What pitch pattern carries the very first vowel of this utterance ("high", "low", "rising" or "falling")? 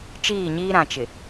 falling